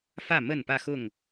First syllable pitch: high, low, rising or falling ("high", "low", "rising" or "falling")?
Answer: falling